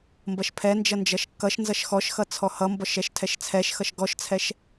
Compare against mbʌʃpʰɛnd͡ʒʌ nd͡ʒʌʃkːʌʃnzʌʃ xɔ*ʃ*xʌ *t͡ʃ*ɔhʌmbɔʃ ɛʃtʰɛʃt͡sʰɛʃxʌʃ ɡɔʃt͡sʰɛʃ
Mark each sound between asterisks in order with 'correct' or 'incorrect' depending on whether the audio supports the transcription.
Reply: correct, incorrect

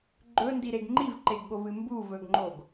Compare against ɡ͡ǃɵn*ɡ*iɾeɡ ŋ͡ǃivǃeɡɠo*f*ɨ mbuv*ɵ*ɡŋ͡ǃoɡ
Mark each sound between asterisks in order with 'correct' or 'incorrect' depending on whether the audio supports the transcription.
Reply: incorrect, incorrect, correct

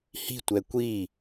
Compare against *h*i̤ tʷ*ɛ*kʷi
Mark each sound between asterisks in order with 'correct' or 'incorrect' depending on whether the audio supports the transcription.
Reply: correct, correct

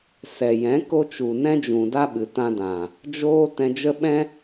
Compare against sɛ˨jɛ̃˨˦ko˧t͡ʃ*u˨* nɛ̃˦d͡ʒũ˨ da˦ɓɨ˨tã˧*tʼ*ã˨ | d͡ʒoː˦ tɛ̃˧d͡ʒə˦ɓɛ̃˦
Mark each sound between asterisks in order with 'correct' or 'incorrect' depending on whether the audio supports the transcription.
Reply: correct, incorrect

